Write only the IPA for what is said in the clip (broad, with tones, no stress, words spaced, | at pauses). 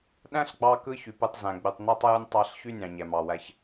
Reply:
ɗæ̃˥ɬɡ͡bɑ˧kɯ˧ çy˩pɯ˧tˤzæ̃˩ ɡ͡by˩tˤnæ˥tˤ jɯ˧nʲtˤɑ˧ɬ çy˥nʲɑ̃˩ ɲæ˩mɑ˩wæ˧ç